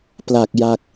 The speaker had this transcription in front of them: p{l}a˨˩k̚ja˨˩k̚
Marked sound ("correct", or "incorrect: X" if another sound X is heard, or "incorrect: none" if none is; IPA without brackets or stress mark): correct